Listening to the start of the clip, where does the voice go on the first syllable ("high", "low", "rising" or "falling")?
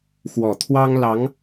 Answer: low